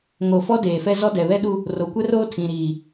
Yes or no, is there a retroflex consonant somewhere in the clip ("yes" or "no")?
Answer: no